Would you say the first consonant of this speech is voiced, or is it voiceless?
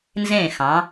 voiced